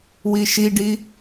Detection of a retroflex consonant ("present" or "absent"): present